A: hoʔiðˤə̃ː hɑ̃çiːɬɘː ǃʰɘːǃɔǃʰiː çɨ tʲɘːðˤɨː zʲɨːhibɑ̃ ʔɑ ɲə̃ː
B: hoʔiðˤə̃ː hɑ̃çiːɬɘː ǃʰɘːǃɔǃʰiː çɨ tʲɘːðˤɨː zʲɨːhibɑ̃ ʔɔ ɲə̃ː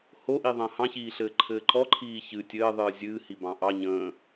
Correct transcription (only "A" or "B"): A